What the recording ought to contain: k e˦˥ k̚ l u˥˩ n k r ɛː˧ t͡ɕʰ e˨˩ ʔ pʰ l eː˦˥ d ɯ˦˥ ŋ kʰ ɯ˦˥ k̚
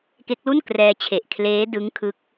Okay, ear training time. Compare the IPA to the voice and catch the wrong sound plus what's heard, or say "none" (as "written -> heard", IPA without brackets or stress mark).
pʰ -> kʰ